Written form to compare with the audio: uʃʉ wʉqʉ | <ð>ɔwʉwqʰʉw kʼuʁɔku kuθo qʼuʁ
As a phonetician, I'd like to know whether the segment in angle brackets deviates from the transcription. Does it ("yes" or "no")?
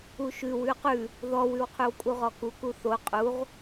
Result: no